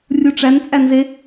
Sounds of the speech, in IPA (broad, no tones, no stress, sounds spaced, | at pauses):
rʲ u ʈ͡ʂ æ n t͡sʼ æ n z e